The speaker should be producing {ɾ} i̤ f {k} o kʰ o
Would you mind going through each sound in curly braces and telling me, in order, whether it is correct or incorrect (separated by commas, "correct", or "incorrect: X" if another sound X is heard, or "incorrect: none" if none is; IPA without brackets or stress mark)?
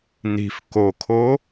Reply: incorrect: n, correct